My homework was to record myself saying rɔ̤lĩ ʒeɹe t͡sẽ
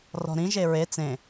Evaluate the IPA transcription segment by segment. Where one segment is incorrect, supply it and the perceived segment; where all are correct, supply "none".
l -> ɾ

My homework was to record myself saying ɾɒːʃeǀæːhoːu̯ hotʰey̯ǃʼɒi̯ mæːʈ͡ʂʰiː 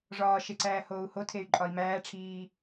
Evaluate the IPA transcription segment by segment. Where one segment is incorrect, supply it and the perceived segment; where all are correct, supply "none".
ɾ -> ʐ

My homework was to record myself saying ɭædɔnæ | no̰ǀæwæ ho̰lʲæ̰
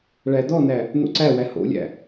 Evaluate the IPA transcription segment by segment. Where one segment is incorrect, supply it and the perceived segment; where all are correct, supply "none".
none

